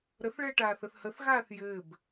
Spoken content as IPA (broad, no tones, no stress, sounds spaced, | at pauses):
ɾ ə θ ɭ ɛː ʈ aː θ ə θ h ə θ ɣ aː θ j ɘː b